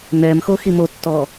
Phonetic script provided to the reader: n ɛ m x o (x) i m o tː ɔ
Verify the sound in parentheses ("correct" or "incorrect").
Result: correct